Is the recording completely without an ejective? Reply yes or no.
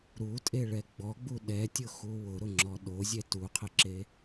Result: no